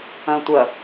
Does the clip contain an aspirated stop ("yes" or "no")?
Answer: no